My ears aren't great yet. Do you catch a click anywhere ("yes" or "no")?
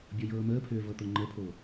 yes